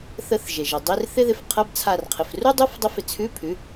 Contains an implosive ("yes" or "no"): no